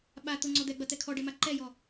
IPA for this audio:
ɓ a t̪ ʊ ŋ͡ǀ ɔ d̪ ɛ ɡ͡b ɐ t̪ ɛ kʰ ɔ ɖ ɛ m a ǃ ɛ j ɔ

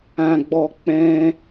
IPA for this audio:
ã˨ ɡ͡b ɔ˨ k͡p ɛ̃˧

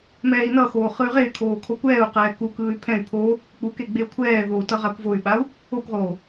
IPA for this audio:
m ɛː i̯ n ʌ x oː χ ɯ y̯ ʁ e y̯ kʰ oː kʰ o kʷ ɛː u̯ q ɛː k u k ɯː y̯ pʰ ɛ̃ y̯ pʰ o | k͡p u k e ɡ͡b e u̯ kʷʰ ɛː ð o u̯ t ʌ ʁ a kʷ v o y̯ ɓ a u̯ | o kʷ ʁ oː

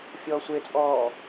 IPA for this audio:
fʲ ɔː sʷ e t͡sʼ ɔː

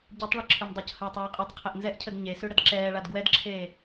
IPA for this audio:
ɟ ɨ tˤ ɭ ɛ ǁʰ ʉ m dˤ u c h əː tˤ ɛː qʼ ʉ tˤ qʰ e ʔ n z ɛ ʔ cʰ ə d ɲ e s ʉ ɽ ə d ǁ ɛː ɭ a d ɡ w ɛ d ǁʰ eː

